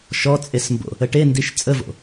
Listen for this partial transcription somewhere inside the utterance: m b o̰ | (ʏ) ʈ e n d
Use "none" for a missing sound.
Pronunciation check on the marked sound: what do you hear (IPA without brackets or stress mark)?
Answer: ə